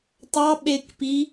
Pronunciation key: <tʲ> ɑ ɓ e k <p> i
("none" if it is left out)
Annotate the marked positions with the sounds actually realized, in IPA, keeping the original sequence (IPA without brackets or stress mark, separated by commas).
tˤ, p